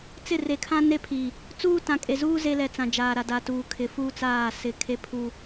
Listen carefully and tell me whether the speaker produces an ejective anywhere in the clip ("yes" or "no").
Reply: yes